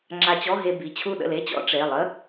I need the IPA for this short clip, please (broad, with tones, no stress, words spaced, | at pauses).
ŋ͡ǁa˧t͡ɕɔ˧˥˧ɦe˧ bi˩˧˩t͡ɕʰu˥˩ ɗə̰˥˩le˧˥˧t͡ɕɔ̰˧˥˧ ʈ͡ʂe˩˧˩lˠə˧˥˧